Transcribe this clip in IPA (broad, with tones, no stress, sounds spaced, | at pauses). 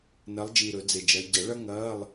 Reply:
n ɐ˨˦ lˠ d͡ʒ i˨˩ ɾ ɵ˨˩˦ d͡z e˨˩ d͡ʒ ɐ˨˦ ɟ ɐ˨˩˦ ɭ ɐ˥ ŋ ɐː˧˥˧ lˠ